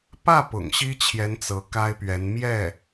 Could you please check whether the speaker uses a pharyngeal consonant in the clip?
no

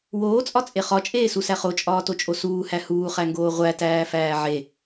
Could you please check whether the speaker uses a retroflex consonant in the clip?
no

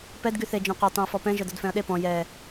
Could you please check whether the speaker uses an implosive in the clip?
yes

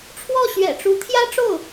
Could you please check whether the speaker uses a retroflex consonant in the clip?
yes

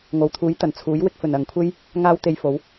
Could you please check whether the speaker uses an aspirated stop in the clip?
yes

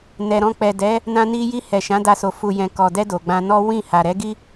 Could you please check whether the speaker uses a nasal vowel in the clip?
yes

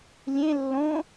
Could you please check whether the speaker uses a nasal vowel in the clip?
yes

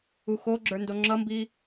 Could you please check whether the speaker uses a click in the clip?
yes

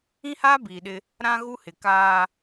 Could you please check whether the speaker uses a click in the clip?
no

